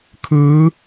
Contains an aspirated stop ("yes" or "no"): yes